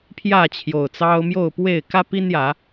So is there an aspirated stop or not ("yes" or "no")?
yes